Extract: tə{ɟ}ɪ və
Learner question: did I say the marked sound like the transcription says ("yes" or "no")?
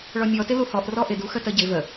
yes